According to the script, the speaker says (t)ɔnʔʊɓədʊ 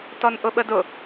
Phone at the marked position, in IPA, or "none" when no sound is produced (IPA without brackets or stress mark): t